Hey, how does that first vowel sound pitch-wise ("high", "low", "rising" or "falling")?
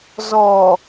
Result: low